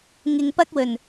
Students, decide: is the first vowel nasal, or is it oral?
oral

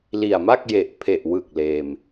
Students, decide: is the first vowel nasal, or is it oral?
oral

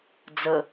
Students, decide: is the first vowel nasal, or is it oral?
oral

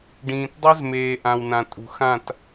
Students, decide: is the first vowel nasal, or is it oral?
nasal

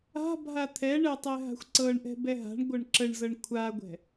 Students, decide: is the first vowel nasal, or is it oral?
oral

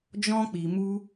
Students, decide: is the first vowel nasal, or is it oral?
nasal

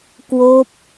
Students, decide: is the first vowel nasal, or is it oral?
oral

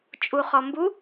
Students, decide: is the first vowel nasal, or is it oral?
oral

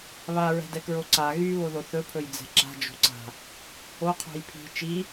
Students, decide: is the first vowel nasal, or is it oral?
oral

